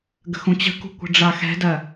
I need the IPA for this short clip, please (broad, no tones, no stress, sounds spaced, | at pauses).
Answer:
ɡ ə̤ x ũ t͡ɕ ə̤ k ṳ kʷ ə̤ ɖ͡ʐ a x ɛ̤ d ɜ